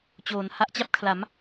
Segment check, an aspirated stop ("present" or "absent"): present